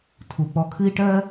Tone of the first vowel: low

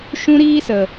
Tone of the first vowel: high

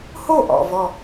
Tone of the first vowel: falling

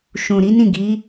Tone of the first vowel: low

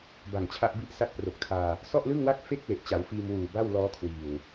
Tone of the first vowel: low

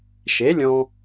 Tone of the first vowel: rising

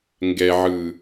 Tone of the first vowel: low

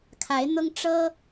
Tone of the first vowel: rising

